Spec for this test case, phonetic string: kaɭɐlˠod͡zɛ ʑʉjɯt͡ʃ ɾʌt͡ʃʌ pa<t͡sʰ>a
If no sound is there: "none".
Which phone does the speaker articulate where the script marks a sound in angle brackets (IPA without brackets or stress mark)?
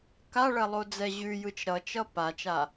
t͡ʃ